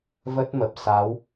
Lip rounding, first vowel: unrounded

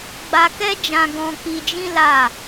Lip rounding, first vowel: unrounded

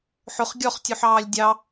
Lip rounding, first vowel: rounded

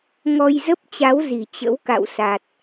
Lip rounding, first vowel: rounded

